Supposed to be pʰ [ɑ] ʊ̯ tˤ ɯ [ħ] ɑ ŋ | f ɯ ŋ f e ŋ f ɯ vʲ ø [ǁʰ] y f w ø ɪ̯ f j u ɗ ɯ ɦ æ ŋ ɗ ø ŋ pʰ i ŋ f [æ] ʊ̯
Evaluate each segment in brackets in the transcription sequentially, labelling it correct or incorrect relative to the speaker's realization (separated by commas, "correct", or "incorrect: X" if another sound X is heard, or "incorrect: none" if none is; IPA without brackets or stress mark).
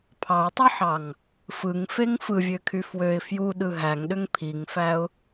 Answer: correct, correct, incorrect: kʰ, correct